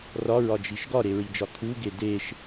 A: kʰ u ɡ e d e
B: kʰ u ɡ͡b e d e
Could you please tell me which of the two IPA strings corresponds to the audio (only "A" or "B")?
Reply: A